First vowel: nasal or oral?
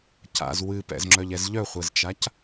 oral